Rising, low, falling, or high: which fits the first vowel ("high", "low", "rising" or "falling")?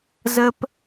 high